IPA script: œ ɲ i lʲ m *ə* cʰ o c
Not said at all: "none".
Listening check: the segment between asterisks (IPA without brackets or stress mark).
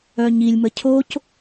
ə